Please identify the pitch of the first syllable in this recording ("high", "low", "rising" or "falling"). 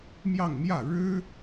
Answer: falling